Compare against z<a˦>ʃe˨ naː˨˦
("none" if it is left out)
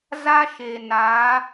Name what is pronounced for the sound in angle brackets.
a˦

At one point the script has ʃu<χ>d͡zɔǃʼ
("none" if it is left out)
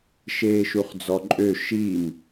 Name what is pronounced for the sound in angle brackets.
χ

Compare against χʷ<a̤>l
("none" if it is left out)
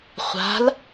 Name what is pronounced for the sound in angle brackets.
a̤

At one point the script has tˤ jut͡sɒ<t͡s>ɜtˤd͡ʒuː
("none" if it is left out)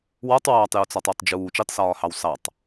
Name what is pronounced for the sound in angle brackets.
tˤ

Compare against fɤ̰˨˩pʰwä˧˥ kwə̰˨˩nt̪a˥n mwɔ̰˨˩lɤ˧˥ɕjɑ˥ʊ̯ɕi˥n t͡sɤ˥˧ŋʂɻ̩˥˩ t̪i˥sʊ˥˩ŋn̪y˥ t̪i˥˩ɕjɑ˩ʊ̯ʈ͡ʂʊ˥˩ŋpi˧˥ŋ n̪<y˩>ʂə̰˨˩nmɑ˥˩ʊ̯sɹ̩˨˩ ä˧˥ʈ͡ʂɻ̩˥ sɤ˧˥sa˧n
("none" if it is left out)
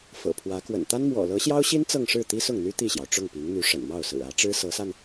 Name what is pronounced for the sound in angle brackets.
y˧˥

